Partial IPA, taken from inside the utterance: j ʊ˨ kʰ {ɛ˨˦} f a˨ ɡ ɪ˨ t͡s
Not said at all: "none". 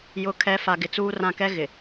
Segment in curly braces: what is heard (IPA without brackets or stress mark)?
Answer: ɛ˨˦